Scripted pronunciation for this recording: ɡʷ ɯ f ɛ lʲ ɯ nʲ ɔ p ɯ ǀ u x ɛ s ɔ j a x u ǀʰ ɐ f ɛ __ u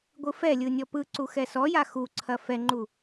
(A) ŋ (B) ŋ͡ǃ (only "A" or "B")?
B